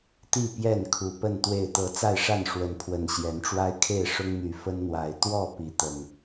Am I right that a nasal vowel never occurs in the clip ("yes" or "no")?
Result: yes